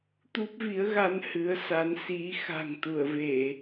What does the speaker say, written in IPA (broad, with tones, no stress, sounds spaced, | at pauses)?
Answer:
t̪ u˦˥ p̚ v i˨˦ ə̯ ɣ a˧ n h ɨ˨˦ ə̯ s a˨˦ n s i˨˦ x a̤˨˩ ŋ t̪ u˧˩ ə̯ v e˧˩˨